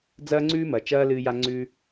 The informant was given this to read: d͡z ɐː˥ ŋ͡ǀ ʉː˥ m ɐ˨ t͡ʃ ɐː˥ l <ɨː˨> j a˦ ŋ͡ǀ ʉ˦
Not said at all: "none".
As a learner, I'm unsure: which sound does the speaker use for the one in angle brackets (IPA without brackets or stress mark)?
ɨː˦